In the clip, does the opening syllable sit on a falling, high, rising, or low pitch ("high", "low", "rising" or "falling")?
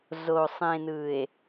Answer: low